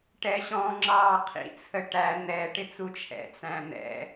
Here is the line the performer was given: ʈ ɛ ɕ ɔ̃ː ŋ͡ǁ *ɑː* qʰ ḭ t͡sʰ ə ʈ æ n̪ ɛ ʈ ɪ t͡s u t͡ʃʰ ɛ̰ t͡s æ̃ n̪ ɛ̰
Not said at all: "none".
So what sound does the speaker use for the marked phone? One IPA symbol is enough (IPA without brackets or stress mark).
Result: ɑː